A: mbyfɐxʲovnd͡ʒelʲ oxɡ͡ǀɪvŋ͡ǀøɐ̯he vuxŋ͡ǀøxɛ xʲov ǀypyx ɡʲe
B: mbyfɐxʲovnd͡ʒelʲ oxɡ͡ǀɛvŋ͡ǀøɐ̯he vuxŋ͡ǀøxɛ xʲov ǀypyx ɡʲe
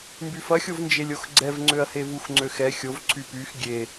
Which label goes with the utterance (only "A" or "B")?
B